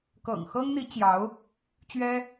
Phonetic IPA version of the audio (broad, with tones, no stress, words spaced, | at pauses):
kɤ̰˨˩ŋxɤ˥ŋn̪i˧˥ t͡ɕjɑ˧˥ʊ̯ | t͡ɕɥɛ˥